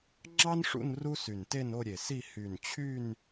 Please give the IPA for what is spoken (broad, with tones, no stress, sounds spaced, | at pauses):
ŋ͡ǁ ɑ˥ n ʂ ṵ˥˧ n r u˥ s y˧˩ n t e˥˧ n o˥˧ ɾʲ e˧˩ s i˥˧ h y˧˩ n t͡ɕʰ y˥˧ n